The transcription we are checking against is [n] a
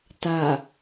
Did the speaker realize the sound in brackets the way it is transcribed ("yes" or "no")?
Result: no